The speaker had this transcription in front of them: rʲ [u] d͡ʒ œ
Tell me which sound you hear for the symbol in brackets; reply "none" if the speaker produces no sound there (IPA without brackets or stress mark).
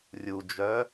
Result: u